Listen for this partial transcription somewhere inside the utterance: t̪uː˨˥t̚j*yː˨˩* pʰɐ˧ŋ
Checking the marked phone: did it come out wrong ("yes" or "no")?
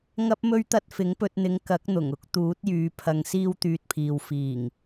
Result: yes